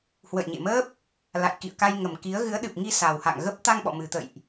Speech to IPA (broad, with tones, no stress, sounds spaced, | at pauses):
h w ə̰˧˨ j ɲ ḛ˧˨ m əː˦˥ p̚ | l a̰˧˨ j k ḭ˧˨ ə̯ k a˧ j ŋ ə˨˩ m k i˨˦ ə̯ ɣ ɨ˨˦ ə̯ ɗ ɨ˨˩ p̚ ŋ i˧ s a˨˩ w h a̰˧˨ ŋ ɣ ə˦˥ p̚ t̪ a˧ ŋ ɓ ɔ̰˧˨ m ɨ˨˩ t̪ ə̰˧˨ j ʔ